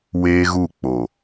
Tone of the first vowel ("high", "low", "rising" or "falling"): high